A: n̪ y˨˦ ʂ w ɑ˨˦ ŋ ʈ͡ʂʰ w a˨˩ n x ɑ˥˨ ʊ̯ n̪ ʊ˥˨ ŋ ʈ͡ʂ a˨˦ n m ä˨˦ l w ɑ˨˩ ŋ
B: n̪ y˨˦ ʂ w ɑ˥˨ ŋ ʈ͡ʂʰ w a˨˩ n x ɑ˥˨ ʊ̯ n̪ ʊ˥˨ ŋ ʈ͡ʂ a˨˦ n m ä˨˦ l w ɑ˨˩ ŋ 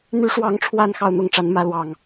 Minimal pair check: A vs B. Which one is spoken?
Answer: A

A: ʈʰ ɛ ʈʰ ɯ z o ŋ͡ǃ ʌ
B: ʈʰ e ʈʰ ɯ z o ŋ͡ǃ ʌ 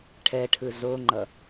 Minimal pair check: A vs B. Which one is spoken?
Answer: A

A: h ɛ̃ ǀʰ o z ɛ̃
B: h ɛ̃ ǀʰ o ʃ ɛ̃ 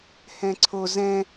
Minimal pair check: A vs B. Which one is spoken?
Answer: A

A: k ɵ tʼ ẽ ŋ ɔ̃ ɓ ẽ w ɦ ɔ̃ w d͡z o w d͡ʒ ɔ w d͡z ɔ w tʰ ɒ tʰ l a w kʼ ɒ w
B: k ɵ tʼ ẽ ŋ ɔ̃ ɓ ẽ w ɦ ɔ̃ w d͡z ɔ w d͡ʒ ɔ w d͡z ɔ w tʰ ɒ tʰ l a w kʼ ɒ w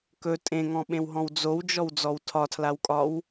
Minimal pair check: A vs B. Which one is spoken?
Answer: A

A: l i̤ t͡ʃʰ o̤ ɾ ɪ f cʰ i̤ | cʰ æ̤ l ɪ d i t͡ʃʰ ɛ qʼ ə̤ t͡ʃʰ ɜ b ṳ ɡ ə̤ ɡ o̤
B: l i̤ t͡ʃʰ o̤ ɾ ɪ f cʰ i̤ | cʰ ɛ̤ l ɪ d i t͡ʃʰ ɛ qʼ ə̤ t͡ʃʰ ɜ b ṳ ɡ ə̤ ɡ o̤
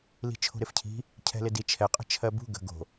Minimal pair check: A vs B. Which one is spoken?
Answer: B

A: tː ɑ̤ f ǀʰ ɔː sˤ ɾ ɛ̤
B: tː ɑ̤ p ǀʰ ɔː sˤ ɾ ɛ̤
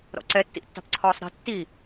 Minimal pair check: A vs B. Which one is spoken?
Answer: B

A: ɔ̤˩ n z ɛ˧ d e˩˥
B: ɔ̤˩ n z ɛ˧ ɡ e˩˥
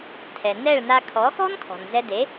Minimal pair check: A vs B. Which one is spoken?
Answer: A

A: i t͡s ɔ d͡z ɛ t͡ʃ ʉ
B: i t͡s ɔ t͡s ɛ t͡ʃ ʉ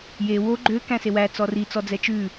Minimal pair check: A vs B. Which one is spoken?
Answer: A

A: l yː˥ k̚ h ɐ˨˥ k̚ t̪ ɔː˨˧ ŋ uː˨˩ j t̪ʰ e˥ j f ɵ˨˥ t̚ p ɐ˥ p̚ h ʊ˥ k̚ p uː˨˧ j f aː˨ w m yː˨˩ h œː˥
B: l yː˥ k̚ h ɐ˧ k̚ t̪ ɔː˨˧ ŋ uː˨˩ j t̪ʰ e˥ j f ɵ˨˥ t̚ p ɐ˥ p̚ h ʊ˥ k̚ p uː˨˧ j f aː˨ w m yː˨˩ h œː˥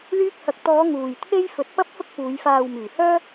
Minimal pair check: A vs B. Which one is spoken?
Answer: B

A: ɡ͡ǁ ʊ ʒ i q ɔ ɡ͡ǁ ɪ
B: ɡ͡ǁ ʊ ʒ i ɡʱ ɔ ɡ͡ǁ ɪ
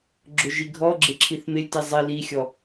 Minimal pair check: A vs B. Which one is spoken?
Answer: B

